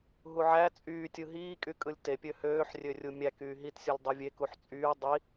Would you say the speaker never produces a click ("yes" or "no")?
yes